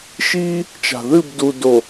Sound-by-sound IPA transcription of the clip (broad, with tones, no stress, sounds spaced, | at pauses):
ʃ iː˦ | t͡ʃ a̤˨ ð ɨ˦˨ b d u˨ d o˨